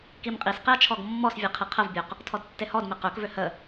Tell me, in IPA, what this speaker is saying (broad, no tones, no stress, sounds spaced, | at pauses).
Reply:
k i m qʼ i s q ɪ ɐ̯ t͡ʃʰ ɔ ɡ mː ɔ s vʲ e qʰ ɪ qʰ ə v bʲ ø q | tʰ ɔ d tː e h ɔ d m ɪ q œ k v ʏ h ə